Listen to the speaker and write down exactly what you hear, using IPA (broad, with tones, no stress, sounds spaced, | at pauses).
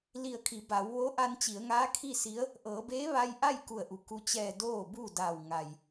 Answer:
l i˧˩ ə̯ kʰ i˩˧ b a˩˧ w ʋ o˧˥ ʔ a˧ n t͡ɕ i˩˧ ə̯ ŋ aː˧˥ kʰ i˥˨ s i˧˥ ə̯ | ʔ ɤː˩˧ b eː˧˥ ʋ a˧ j ʔ a˥˨ j k u˧˩ ə̯ ʔ u˩˧ k u˧ t͡ɕ ɛː˧˩ d oː˥˨ b u˥˨ d a˧˩ w ŋ a˩ j